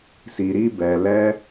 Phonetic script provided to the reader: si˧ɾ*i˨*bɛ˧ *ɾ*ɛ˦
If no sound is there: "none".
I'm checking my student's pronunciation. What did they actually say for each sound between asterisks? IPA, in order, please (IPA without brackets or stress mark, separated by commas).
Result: i˦, l